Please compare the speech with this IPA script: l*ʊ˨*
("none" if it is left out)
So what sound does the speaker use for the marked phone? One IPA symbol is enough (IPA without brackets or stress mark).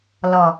ɔ˨